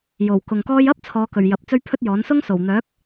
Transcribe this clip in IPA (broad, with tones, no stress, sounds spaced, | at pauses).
j o˨˩ w k ʊ˨ ŋ k ɔː˥ j ɐ˥ p̚ t͡sʰ ɔː˨˧ k ɵ˨˩ ɥ j ɐ˨˥ p̚ t͡s ɵ˥ ɥ pʰ ɵ˥ t̚ j ɔː˨˥ n s ʊ˥ ŋ s o˨˩ w n̪ œː˨˥ k̚